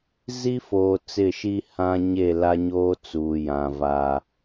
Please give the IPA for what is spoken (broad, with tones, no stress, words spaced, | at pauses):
zi˦foː˨ t͡sɪ˦˨ʃi˦ hã˦ɲe˦˨ la˦ɲoː˦ t͡suː˨jã˨ vaː˨